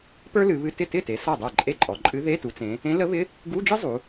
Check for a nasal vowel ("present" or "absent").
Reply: present